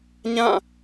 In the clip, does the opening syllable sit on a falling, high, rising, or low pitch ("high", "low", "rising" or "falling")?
falling